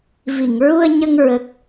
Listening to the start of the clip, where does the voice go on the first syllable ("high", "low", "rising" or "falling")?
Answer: low